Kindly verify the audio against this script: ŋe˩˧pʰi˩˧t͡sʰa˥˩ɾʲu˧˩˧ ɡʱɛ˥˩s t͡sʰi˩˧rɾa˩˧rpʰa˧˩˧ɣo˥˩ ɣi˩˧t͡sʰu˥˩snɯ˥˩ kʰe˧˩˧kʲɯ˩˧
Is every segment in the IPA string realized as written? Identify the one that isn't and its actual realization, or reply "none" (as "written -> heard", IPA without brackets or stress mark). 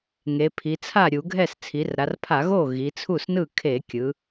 none